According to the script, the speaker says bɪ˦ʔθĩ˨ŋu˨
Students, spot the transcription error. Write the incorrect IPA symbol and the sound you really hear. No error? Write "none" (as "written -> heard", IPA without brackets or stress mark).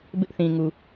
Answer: none